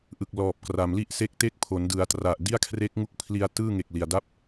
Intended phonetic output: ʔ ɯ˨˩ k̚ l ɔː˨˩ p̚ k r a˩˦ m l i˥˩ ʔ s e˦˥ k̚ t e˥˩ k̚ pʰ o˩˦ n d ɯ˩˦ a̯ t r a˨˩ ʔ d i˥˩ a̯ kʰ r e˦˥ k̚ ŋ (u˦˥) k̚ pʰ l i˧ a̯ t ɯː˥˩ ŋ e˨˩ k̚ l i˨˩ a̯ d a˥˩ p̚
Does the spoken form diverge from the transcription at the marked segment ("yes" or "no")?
no